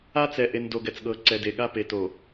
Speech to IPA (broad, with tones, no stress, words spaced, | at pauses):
a˦t͡sɛ˨ʔe˨n do˨ɡɛ˨t͡sɠɤː˨ ǀɛ˨de˨ɠa˦pe˨ to˨